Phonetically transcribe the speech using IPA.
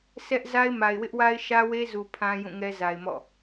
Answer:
sʰ ɛ˦ ʔ z a˦ ɪ̯ m a˨ ɪ̯ w ɪ˦ ʔ w a˦ ɪ̯ ʃ ä˦ w e˦ z u˨ pʰ ã˦ j ũ˦˨ ŋ ɛ˦ z a˨ ɪ̯ m ɔ̰˦˨

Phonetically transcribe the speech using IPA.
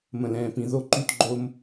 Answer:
m ə̃˨ l ɛ̃ː˨ p ĩ˨ ð o˦ ǃ y˦ t ɡ͡ǃ o˦ m

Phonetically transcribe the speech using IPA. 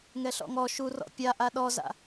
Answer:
ŋ ɛ ɬ ɔ̰ ŋ ɔ ʃ u r ɔ̰ pʲ a ʔ a ɗ ɔ z a̰

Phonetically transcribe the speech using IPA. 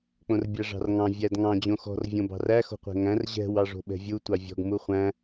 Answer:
k͡p õ r bʲ æ ʐ ɑ̤ r ŋ ɑ̃ vʲ æ d ŋ ɑ̃ d͡ʑ õ x ɔ̤ r vʲ õ b ɑ̤ r æ x o̤ qʷ ɛ̤ ŋ æ̃ r ʑ ɛ̤ w ɑ ʐ o̤ ɓ ɛ̤ vʲ u tʷ ɑ vʲ ɔ̤ ɡ m u χʷ æ̃

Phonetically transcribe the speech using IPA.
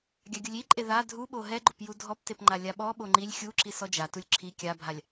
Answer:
ɡʲ a ɡʲ ʊ lʲ i ǃʼ e ð a dʱ u ɓ o ɦ ɛ ɡ͡ǃ ʊ p j u dʱ ɔ p t e p ŋ͡ǃ a lʲ a ɓ ɔ ɓ o ŋ͡ǃ i lʲ xʲ u ǁ i s ɔ d͡ʒ a t u lʲ ǁʰ i kʲ a bʱ a lʲ

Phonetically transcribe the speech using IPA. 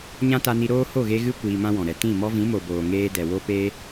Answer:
ɲ ã˦ t a˧ n i˧ ɾ oː˦ h o˦˨ ɣ e˧ ɣ ɨ˦ kʷ iː˧ m ã˦ w ɔ̃˨ ɾ ɛ˨ t ĩ˦˨ m ɔ˧ v ĩ˨˦ m o˨ b oː˨ ŋ eː˧ d ɛ˨ w o˦ p eː˧

